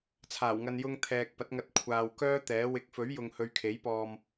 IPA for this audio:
t͡sʰ aː˨˩ w ŋ ɐ˧ n j ʊ˧ ŋ t̪ʰ ɛː˨ k̚ p ɐ˨˥ t̚ ŋ ɐ˧ t̚ kʷʰ aː˨ w k œː˥ t̪ ɛː˨˥ w ɪ˨˥ k̚ f ɵ˨˥ ɥ j ʊ˧ ŋ h ɵ˧ ɥ kʰ e˨˥ j p ɔː˧ m

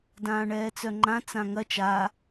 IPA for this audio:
d ãː ɳ ɛː t͡s œ ŋ͡ǃ ã t͡s ã ŋ ɐ t͡ʃ a

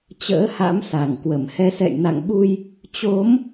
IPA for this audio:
t͡ɕ ə̰ː˧˥ h a̰˧˥ m s a˧˩ ŋ k w ə˧˩ m h ɛ˨˦ s ɛ̰˧˨ j n a̰˧˨ ŋ ɓ u˧ j | t͡ɕ o˨˦ m

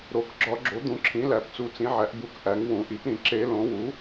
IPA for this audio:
ɾ o˩˥ k ɡ͡ǁ ɒ˨˩˦ ɡ͡ǁ o˩˥ d̪ ũ˩˥ ǁʰ ĩ˩˥ l æ˨˩˦ p t͡s u˨˩˦ t͡s ĩ˩˥ ʕ æ˩˥ ʔ b u˨˩˦ k ʔ æ˩˥ ŋ w ũ˨˩˦ ʔ i˩˥ p ɾ ĩ˨˩˦ ǁ e˨˩˦ l õ˩˥ w u˩˥

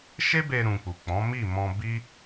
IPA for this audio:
ʃ e˦ b e˧ ɾ ũ˨ k͡p u˨ k͡p ɔ̃˨˦ m i˦˨ m ɔ̃˧ b i˦

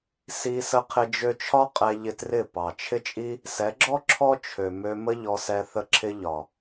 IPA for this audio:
s i˧ s ə˧ qʰ ɪ˧ d͡ʒ ø˧ t͡ʃʰ ɒ˦ qʼ ɛ˧ ʎ ɪ˧ t r ɪ˦˨ p ɑ˨ t͡ʃʰ ɪ˦ t͡ʃʼ i˦ | s ɛ˨˦ ɡ͡ǁ ɔ˦ ǁʰ ɔ˦ t͡ʃʰ ø˨ m ø˧ m ə˦ ʎ ɔ˧ s ɛ˧ θ ə˧ ǁʰ ɪ˧ ʎ ɒ˨

